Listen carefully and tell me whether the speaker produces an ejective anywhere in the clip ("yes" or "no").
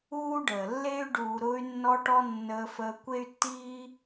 no